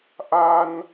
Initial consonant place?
glottal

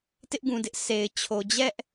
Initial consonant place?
alveolar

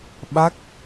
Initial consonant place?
labial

